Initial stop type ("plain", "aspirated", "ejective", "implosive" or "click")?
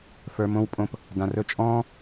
ejective